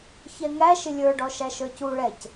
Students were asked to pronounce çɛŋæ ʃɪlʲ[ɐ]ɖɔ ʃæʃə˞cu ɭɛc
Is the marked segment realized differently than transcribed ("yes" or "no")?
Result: yes